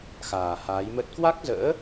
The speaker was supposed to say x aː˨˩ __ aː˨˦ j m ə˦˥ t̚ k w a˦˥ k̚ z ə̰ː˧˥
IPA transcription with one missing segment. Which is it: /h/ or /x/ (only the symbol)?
h